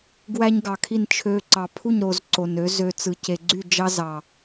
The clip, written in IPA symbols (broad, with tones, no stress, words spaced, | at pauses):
ɡwæ˦ɲɡɑ˨kʰi˦˨n t͡ʃʰø˦ǀɑ˧ pʰu˦˨ɲɾo˨z ǀo˨nø˨˦zø˧ t͡sɯ˨ce˨ɡ͡ǀy˦˨ d͡ʒɑ˦zɑ˨